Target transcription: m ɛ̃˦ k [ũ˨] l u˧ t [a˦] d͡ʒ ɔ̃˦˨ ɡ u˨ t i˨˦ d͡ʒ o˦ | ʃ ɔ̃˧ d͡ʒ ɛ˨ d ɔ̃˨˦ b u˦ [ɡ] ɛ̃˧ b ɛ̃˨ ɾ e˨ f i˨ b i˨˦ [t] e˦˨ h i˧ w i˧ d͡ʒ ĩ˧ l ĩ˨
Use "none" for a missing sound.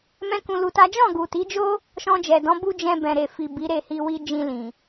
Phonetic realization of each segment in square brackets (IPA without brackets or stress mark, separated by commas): ũ˧, a˦, d͡ʒ, ɾ